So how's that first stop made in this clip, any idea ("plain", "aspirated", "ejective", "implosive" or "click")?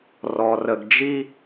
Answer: plain